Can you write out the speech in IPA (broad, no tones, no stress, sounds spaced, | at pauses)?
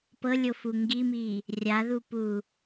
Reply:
p ɤ lʲ o f u ŋ ɡ i m i | rʲ a ð u p u